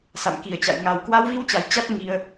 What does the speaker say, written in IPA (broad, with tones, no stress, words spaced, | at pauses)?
sa̰˧˨mki˨˩ə̯t͡ɕa̰˧˨j ŋa˨˩wkwa˧wvi˧wt͡ɕa˨˩j t͡ɕa˦˥t̚ŋi˧ə̯